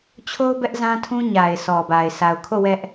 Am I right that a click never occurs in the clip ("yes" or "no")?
yes